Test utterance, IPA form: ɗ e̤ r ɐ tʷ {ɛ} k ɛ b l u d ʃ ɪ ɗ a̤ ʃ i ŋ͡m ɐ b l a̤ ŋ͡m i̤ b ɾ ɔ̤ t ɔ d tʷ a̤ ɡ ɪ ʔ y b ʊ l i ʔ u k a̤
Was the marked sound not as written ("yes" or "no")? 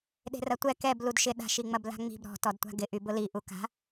no